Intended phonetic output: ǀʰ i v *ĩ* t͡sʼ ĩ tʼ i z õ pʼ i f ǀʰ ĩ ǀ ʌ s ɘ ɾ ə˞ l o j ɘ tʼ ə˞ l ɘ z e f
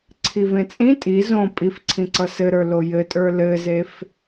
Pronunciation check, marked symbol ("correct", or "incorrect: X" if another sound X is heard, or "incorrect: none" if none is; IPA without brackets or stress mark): incorrect: ẽ